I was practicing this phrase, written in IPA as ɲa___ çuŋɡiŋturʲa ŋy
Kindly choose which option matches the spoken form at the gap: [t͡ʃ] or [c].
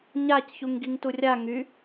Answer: c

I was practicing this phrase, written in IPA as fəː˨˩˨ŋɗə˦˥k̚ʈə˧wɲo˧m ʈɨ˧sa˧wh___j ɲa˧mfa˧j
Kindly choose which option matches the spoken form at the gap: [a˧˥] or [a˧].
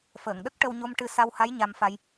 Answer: a˧˥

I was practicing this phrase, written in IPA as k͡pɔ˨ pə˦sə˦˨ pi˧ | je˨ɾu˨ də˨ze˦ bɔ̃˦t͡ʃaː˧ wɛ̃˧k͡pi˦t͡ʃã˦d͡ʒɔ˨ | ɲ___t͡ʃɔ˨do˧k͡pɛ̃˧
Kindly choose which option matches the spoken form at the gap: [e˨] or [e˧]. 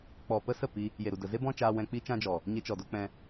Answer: e˧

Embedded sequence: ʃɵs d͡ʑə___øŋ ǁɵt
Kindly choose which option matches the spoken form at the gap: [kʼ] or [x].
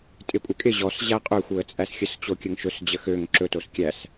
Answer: x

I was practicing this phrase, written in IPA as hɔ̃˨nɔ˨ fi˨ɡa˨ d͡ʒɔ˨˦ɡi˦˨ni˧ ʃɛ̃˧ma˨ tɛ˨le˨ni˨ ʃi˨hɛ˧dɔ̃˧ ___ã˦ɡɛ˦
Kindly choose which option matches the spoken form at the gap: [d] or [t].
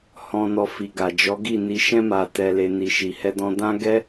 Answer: d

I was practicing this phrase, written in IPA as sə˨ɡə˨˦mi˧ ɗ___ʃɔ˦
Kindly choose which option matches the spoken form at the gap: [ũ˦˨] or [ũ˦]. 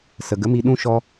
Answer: ũ˦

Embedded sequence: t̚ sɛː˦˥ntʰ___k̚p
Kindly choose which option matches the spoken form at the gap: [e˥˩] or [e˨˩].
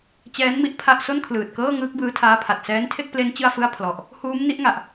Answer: e˥˩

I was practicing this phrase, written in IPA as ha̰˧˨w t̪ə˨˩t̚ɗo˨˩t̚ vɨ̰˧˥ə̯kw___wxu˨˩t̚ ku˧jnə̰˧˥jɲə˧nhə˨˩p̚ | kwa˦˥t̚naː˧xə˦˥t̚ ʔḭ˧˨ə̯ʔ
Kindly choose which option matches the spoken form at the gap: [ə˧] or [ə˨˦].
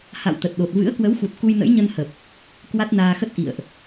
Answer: ə˨˦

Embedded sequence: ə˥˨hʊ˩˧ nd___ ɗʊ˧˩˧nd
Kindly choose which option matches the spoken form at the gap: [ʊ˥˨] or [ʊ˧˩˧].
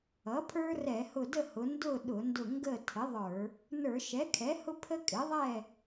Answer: ʊ˥˨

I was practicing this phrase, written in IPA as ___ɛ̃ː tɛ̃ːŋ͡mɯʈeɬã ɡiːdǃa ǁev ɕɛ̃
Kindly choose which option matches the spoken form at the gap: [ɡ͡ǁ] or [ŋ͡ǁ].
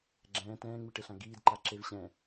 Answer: ɡ͡ǁ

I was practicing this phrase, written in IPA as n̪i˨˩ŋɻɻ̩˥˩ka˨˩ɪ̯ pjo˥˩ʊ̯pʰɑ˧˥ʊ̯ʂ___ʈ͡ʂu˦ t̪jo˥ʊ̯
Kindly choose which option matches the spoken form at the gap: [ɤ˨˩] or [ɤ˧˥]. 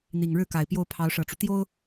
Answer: ɤ˨˩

